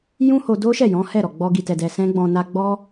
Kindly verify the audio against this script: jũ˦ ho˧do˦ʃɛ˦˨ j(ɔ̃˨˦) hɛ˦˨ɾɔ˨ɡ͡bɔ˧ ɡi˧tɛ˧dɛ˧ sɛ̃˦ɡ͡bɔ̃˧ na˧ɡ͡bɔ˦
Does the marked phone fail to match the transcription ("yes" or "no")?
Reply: no